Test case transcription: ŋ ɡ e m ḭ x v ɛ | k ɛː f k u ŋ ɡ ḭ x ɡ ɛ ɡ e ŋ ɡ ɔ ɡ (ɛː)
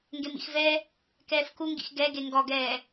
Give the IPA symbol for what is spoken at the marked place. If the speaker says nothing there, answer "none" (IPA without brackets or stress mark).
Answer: ɛː